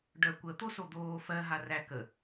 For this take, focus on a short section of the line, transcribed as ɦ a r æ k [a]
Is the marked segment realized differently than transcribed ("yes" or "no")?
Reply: yes